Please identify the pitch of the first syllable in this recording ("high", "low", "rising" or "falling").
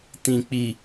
low